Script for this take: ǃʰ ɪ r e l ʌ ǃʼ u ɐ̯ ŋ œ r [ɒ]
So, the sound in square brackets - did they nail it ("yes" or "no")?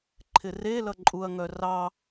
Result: no